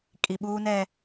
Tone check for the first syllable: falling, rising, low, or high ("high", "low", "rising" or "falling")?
low